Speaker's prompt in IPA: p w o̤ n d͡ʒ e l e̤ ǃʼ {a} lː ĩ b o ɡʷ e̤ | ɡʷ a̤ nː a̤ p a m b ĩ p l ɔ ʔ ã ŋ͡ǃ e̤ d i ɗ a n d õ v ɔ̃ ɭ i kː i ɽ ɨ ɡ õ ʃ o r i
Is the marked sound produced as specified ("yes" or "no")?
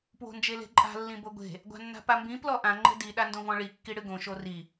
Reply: no